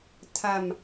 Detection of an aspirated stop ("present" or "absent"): present